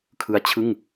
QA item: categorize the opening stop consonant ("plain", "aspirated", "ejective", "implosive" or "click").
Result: aspirated